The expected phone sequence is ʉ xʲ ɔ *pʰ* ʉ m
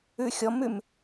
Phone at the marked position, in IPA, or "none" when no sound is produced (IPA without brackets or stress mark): m